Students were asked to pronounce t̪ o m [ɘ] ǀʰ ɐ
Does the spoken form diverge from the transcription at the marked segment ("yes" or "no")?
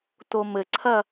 no